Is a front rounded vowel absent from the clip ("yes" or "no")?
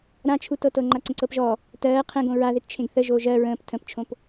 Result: yes